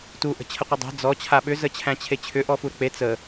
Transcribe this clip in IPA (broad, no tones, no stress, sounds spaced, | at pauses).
t u ʔ ə̤ t͡ɕʰ ə qʷ ə dˤ ɛ̤ d͡z ɔ t͡ɕʰ a ɓ ʏ z ə t͡ɕʰ æ̃ t͡ɕʰ e t͡ɕʰ ʏ ʔ ɔ f u ɾ ə̤ k͡p e t͡s ə